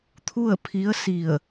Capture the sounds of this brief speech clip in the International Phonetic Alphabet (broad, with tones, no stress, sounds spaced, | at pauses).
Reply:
t̪ʰ u˥˨ ə̯ pʰ i˧˥ ə̯ s i˧˩ ə̯